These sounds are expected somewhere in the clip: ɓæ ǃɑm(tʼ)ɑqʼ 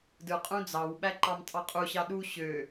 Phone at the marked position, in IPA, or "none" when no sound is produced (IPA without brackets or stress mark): tʼ